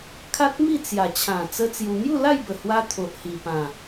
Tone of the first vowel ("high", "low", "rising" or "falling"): high